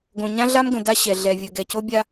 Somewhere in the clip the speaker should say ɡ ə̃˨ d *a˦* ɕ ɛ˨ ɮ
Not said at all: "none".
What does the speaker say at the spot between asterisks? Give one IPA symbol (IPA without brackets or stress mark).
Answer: a˦